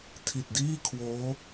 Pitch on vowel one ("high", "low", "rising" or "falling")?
low